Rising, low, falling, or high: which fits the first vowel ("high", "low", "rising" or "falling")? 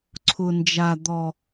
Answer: low